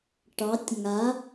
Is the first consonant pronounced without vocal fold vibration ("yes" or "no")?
yes